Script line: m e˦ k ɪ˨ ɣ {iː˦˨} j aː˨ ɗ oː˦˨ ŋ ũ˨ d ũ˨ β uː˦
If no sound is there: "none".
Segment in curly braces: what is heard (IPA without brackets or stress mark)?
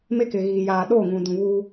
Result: iː˨